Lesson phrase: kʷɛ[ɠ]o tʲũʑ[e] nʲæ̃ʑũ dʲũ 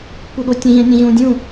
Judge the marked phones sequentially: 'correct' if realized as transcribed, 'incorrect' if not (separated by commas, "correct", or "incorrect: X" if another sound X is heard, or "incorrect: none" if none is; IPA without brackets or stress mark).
correct, incorrect: ẽ